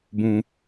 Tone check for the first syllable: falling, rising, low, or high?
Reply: high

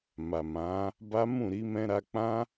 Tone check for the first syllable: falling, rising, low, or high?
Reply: low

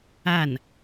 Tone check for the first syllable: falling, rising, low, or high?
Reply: falling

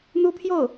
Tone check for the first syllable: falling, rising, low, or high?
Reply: high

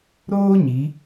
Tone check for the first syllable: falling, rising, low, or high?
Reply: high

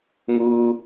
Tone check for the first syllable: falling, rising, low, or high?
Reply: low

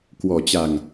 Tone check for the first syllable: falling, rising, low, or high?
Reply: low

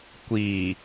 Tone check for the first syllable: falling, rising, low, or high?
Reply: low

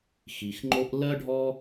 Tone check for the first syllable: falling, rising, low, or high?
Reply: low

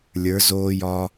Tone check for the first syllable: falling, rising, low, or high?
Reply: rising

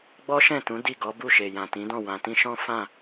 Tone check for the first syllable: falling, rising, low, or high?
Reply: high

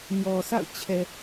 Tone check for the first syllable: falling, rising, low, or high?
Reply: low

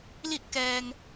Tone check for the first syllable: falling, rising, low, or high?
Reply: falling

